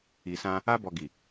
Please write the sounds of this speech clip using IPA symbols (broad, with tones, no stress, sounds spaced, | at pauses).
i˨ s ã˧ | a˧ b ɔ˨ ɡ i˨